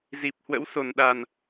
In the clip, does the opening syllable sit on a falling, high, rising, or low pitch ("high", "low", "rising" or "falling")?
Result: low